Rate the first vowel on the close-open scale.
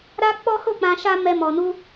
open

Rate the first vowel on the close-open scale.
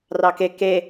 open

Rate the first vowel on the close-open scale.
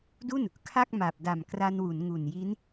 close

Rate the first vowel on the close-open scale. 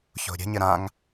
mid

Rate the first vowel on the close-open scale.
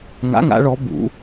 open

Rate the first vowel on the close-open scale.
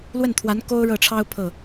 mid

